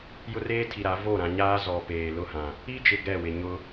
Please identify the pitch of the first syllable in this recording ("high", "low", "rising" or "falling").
high